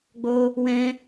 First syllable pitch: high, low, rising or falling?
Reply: high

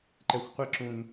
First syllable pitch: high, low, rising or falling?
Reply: low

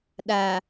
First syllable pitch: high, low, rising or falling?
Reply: low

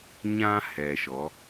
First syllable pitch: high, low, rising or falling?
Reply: high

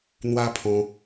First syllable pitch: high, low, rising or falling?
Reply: high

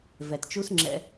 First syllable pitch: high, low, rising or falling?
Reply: low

